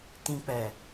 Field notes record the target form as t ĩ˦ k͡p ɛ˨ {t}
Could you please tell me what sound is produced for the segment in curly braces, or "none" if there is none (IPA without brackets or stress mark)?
none